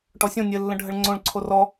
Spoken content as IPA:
ʈ ɔ sʲ õ nʲ ɘ lː ə̃ ɖʱ ə ɭ ŋ͡ǀ õ ɭ ǀʰ o r ɔ

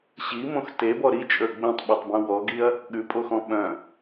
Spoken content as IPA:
ɕ i m õ x t e b ɔ ɾ i t͡ʃʼ ə˞ ɡ͡b ẽ tˤ ɓ o tˤ b ũ w ɔ ɡ i ɐ̯ | ɠ ʉ pʼ o x ɔ̃ ɓ œ̃

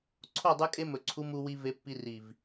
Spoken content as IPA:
ǀʰ o˦˨ dˤ ɨ˧ kʼ e˧ m ɵ˨ ǀʰ u˧ m u˧ w i˧ v e˧ pː i˧ r i˨ v

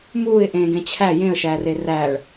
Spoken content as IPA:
m uː ɪ̯ ʔ ẽː ɡ ẽ t͡ɕʰ æ j ẽ ə̯ ʃ æː r e r æː ɭ

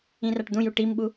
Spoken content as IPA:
ĩ r a ʈ d̪ ũ j u ʈ i m ɓ u

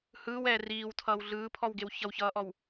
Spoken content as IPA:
h ɯː w ɛː r iː w tʰ ʌː w ɮ ɯː pʰ ɔ w ɡ e w ç ʌ w ç ʌː ʔ ɔ w

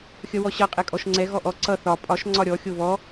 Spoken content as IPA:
xʲ ʌ w ɔ ɕ ʌ qʼ ɛ kʼ ɔ ʃ ŋ͡ǀ ɛ ɣ ɔ ʔ ɔ ǀ ʌ θ ɒ pʼ ɒ ʃ ŋ͡ǀ ɒ ɾʲ ɔ xʲ o β ɔ

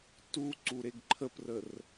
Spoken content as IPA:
t u ǀ u ɾ e ɡ ǃʰ ə p r ə r

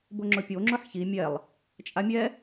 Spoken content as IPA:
b ʊ ŋ͡ǁ ʊ pʲ o ŋ͡ǁ ʊ ħ ç i mʲ ɛ lˠ | t͡ʃʼ a mʲ ɛ

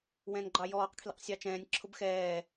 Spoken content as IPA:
w ɛ̃ n ɡ͡ǃ ɑ j ɔː q kʰ l ḭ q sʲ ɑ t͡ʃ ɛ̃ː nʲ ǁʰ ʊ b x ɛː

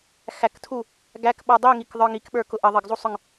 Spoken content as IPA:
x æ k tʰ u | ɡ æ k ɓ ʌ dˤ i ŋ i k ðˤ ə˞ ŋ i k ɓ ə˞ k ʊ ʔ ə ðˤ ə ɡ zˤ u sˤ ʊ ŋ

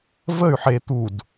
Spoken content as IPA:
v ə y̯ ħ e t̪ u d

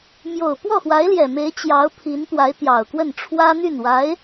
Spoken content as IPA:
m j o˨˩ ʊ̯ p w ɔ˥˩ x w a˧˥ ɪ̯ l j ɛ˨˩ m e˧˥ ɪ̯ t͡ɕ j ɑ˧˥ ʊ̯ pʰ i˧˥ n t̪ w a˧˥ ɪ̯ t̪ j ɑ˨˩ ʊ̯ k w ə˥˩ n ʈ͡ʂʰ w ä˥ n̪ y˥˩ n w a˧˥ ɪ̯

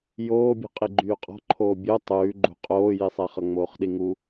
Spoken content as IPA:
j oː bʲ ṳ qʼ i ɡ͡ǃ yː qʼ ɔ̤ ǃʰ oː bʲ o tˤ ʉː ɡ͡ǃ ṳ qʼ oː j i sˤ ɛ χ ʌ ŋ͡m oː χ ɗ i ŋ u

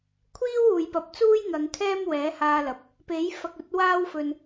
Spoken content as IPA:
kʷʰ iː˥ w uː˨ j p ɐ˨˥ p̚ t͡s uː˥ j ŋ ɐ˨˧ ŋ kʰ ɛː˥ m w ɛː˨˥ h aː˧ l ɐ˨ p̚ | p e˨˥ j f ɐ˨ k̚ ɵ˨˥ t̚ w aː˥ w f ɵ˧ n

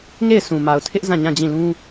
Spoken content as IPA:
ŋ e˦˨ ɪ̯ s ũ˨ m a˨ ʊ̯ tʰ ɪ˦ ʔ z ã˦˨ ɲ ã˦˨ d͡ʑ ĩ˦˨ l ũ˦

